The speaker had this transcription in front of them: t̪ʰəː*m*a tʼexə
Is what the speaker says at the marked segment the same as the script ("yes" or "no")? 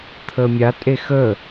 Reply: no